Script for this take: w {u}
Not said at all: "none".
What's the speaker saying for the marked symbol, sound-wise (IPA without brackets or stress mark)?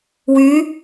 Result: y